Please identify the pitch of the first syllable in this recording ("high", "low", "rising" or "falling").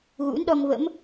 rising